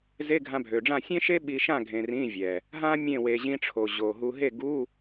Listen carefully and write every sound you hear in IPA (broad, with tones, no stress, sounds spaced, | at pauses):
z e˧˥˧ ɡʱ ã˧ bʱ ø˨˩ ɖ͡ʐ ã˥˩ sʲ ẽ˥ ʃ e˥ ɓ i˧ ʃ ã˥˩ ɡʱ ẽ˧ r ĩ˧˥˧ vʲ ɛ˨˩ | ɦ ã˥ mʲ ẽ˥˩ w e˧ ʑ ĩ˧ ʈ͡ʂʰ o˨˩ ʑ o˨˩ ɦ u˧ ɦ e˥˩ ɡ u˧˥˧